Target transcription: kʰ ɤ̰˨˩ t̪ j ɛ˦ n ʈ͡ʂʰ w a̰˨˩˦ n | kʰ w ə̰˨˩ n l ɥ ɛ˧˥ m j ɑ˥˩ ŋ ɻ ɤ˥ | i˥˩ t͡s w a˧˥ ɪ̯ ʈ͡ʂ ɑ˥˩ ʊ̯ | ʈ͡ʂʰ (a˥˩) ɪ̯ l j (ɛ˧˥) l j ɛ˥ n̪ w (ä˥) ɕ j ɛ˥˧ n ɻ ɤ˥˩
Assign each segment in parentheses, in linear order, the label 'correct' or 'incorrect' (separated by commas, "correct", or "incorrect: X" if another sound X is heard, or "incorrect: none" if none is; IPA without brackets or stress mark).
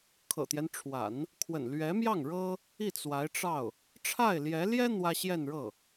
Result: correct, correct, correct